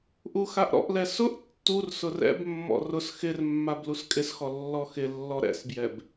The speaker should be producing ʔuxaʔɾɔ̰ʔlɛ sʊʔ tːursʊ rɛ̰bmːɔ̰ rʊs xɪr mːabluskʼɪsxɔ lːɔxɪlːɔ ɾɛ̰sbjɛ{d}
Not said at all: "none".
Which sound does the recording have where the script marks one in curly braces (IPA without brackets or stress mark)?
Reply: b